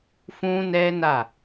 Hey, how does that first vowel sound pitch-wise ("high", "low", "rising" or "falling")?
high